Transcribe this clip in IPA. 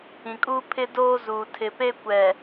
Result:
ĩ˨ kʼ uː˦ pʰ ɪ˦ d oː˦ z uː˨ tʰ ɪ˨ p e˦ kʷ ɛ˨

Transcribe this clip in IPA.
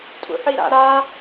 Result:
tʼ ṵ ħ i ɾ a̰ ɾ a

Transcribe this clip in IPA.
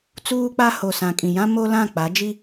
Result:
t͡s uː˦ k͡p a˦ h o˨ s ã˨ kʼ ĩ˨ j ã˦ m o˦ l ã˦˨ k͡p a˨˦ d͡ʒ i˦

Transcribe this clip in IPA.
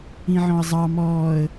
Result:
ĩ ʕ ɔ̃ ə̯ zˤ ɑ m ɔː ə̯

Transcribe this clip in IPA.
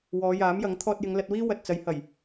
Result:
w ɔː˨˧ j aː˨˥ m j ɐ˨˥ ŋ t̪ʰ ɔː˧ t̚ j ɪ˨˧ ŋ l ɐ˧ t̚ w iː˥ w ɐ˨ t̚ t͡s ɐ˨˧ j h ɐ˨˩ j

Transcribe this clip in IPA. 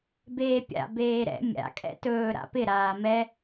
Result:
b eː pʲ a̰ b eː ɾ ɛ̰ mʲ a̰ kʼ ɛ̰ t ɵː ɾ a̰ p ɪ ɾ aː m ɛ

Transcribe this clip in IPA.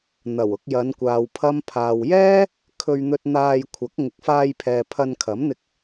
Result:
n̪ ɐ˨˩ w ʊ˧ k̚ j ɐ˨˧ n kʷ aː˨ w pʰ ɐ˥ m pʰ aː˨ w j ɛː˥ | kʰ ɵ˧ ɥ n̪ ɵ˧ t̚ n̪ aː˧ j kʷʰ ɐ˨˥ k̚ ŋ ɪ˨ k̚ f aː˧ j pʰ ɛː˨ pʰ ɐ˧ n kʰ ɐ˨˥ m n̪ ɪ˧ k̚

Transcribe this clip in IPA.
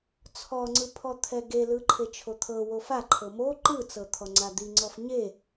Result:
t͡sʰ ɔ ŋ͡ǀ ɯ pʰ ɔ t̪ʰ ɛ ɡ e l ɯ ǃʰ e t͡ʃʰ o t̪ʰ ɤ w o f a ǃʰ ɤ m o ǃ ɯ t͡s ɤ t̪ʰ ɔ ŋ͡ǀ a d̪ i ŋ͡ǀ ɔ f ɲ e

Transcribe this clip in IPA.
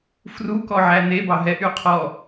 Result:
f r u k ɔ ʕ æ n e b ɑ ɦ ɛ ʔ y qʰ ɔ

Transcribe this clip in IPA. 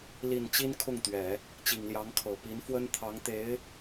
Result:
l i˨˩ n t͡ɕ i˥ n kʰ ʊ˥˩ ŋ t̪ ɥ ɛ˨˩˦ | t͡ɕ i˨˩ ŋ l j ɑ˧˥ ŋ kʰ ɤ˨˩ p i˧˥ n f w ə˥ n t̪ʰ ɑ˧˥ ŋ t̪ e˧˥ ɪ̯

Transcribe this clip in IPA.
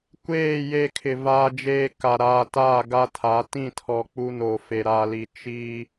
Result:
kʷ eː˦˨ j e˦˨ kʰ ɪ˨ v aː˦ d͡ʒ eː˦ k a˨ ɾ aː˨ t aː˦˨ ɡ a˦ tʰ a˨˦ t ĩ˦˨ tʰ ɔ˨ k͡p u˦ n o˨ f e˨ ɾ a˨ l i˨ t͡ʃ i˦

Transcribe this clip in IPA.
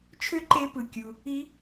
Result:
t͡ʃʰ ø˥ ǃ e˧˥ p ɯ˩ kʲ u˩ | i˧˥

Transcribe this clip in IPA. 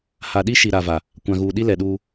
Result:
h a˨ ɗ i˦ ʃ i˨ ɾ a˨ v a˨ | kʷ ã˨ ɣ uː˨ ɗ i˦ l ɛ˨ ɗ uː˦

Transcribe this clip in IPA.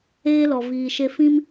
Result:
eː˦ l ɔ˨ v iː˨ ʃ e˧ f ĩ˧ m

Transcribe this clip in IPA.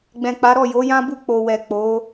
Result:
ɡ͡b ɛ̃˨ k͡p a˨˦ ɾ ɔ˦˨ j o˨˦ j ã˦ b u˦˨ k͡p o˨ w ɛ˨ k͡p o˨˦

